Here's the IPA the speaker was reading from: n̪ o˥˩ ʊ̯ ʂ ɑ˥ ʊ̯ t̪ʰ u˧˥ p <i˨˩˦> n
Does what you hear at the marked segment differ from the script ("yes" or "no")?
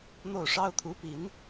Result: no